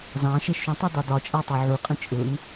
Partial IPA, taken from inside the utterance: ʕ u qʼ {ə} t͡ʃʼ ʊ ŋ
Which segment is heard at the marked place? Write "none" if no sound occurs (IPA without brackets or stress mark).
ə̃